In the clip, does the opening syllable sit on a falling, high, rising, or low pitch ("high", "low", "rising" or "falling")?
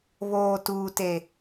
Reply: low